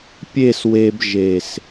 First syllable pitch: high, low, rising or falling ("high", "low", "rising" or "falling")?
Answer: falling